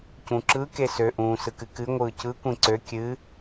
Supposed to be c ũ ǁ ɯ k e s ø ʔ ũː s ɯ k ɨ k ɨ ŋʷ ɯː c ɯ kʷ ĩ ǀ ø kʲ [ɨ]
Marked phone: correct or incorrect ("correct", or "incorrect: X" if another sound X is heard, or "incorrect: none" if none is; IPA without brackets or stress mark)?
correct